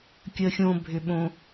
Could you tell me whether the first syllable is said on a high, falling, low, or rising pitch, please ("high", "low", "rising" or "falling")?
low